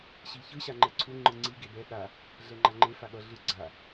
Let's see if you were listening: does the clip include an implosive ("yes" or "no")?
yes